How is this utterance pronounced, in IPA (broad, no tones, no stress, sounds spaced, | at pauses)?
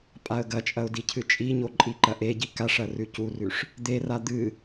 pʼ a ə̯ ɡ ɐ t͡ʃʼ ɐ ʊ̯ d i cʰ ɨ t͡ʃʼ i ɲ o ǃʼ i ǃ ɐ ʔ e ɟ i k a ʂ ɐ r ʉ c u r ʉ ʂ | d̪ e r a d̪ ɨ